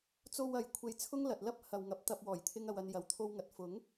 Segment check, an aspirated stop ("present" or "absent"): present